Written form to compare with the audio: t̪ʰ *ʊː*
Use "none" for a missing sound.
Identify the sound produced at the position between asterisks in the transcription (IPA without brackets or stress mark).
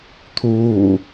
uː